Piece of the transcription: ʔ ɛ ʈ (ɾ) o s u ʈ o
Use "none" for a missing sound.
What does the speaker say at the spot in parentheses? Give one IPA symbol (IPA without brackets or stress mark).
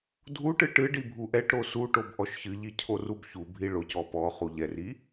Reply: ɾ